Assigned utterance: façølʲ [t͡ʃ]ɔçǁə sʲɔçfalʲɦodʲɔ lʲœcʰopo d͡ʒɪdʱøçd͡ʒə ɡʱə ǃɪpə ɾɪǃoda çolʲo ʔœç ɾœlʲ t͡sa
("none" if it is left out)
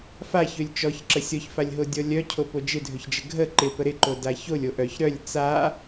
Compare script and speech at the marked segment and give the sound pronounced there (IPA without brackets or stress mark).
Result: t͡ʃ